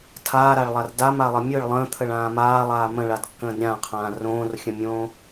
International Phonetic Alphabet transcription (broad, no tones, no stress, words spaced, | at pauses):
tʰaːɾaɭlˠar damalˠə mʲɯɭ lˠə̃ːt̪ʰəɭãː maːlˠaː mə̃ɭadkːə̃ːd ɾʲãqʰãː rõːrxʲə̃mʲõː